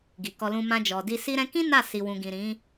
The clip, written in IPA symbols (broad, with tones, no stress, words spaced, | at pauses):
ɡi˨kɔ˧lũ˧ mã˧d͡ʒɔ˨di˧ si˧ɾɛ̃˧kĩ˦ na˦˨si˨wũ˨ɡĩ˨ ɾĩ˨˦